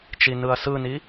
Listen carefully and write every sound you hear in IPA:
t͡ʃ i n ɯ ɐ̯ s ɯ n i

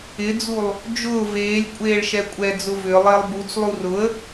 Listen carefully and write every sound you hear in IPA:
ɪ d͡z u lˠ | d͡ʒ ʊː v eː lʲ kʷʼ eː ɭ ʃ ɛ kʷʼ ɛ d͡z ʊ v ʏ lˠ ɪː lˠ b u t͡s lˠ u r ʊ ə̯

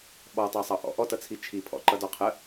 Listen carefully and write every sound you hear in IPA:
ɓ ɔ tˤ ɑ sˤ ɑ ʔ ɔ̰ ʔ ɔ t ʌ t͡sʰ i t͡ʃʰ i pʰ ɔ̰ ǃ ʌ d ɔ qʰ ə

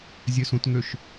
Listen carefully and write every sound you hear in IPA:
zʲ ø s ũ t ŋ ø ʃ

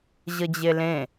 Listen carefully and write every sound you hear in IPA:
ʑ ə d͡ʑ e l ẽ

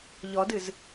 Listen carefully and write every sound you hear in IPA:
ʎ ɔ d ɨ z

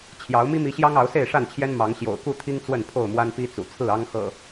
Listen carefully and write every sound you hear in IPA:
t͡ɕʰ j ɑ˨˦ ʊ̯ m i˦ m i˨˦ ɕ j ɑ˦ ŋ ɑ˨˦ ʊ̯ s e˥˨ ɪ̯ ʂ a˥˨ n t͡ɕʰ j ɛ˦ n m ɑ˨˦ ŋ ɕ j o̰˨˩ ʊ̯ k u˥˨ t̪ʰ i˦ ŋ t͡s w ə˥˨ n pʰ o˥˨ ʊ̯ m w a˦ n p i˦ t͡s ṵ˨˩ t͡sʰ ɹ̩˥˨ ɑ˦ ŋ x ɤ̰˨˩

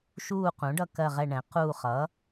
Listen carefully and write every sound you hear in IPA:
ʃ uː˦˨ q ũ˩˥ ɖ ʌ˦˨ k ɜ˦˨ ʁ ɛ˦˨ ɳ ɛ̃˩˥ q uː˦˨ χ ʌː˩˥

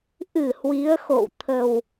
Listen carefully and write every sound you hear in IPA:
ʔ ɨ˧˩ h w i˨˦ ə̯ x o̰˧˨ w t̪ʰ ə˨˩ w

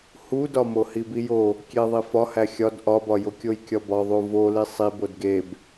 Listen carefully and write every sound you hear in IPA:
h u d ɒ m o h i b i j o | kʲ e ðˤ i f ɒ h æ xʲ ɒ d ʔ ɒ b ɒ j o kʲ o j kʲ ɒ b ɒ ðˤ u v o l i sˤ i b o d ɡ e b

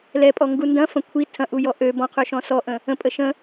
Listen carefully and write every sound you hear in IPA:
l ɛ pʼ ɔ ŋ ɡ u n d ɐ̃ f ɐ̃ kʷʰ i tʰ ɐ̃ ʔ u j ɔ ʔ ø b ɔ̃ qʰ ø ʃ ɔ̃ s ɔ ʔ ə̃ | ə̃ pʼ ə ʃ ə̃

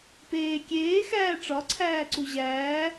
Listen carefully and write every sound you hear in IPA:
p eː kʲ eː x æː ʈ͡ʂ ɒ ǀʰ æː ǀ u ʑ æː

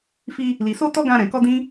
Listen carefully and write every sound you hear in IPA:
f i˧ | l i˨ s o˧ t ɔ˦ ɡ ã˧ ɾ ɛ̃˨ k ɔ˧ d ĩ˦

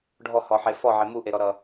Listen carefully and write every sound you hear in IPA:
ɖʱ ɔ h ɔ ħ e f ɔ ʕ e m u ʔ e ɾ ɔ ɾ ʌ

